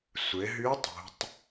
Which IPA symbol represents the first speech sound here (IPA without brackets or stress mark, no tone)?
sʷ